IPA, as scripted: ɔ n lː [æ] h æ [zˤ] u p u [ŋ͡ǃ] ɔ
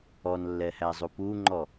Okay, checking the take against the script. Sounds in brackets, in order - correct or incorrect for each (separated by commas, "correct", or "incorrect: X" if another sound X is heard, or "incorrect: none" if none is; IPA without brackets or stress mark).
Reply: incorrect: ɛ, correct, correct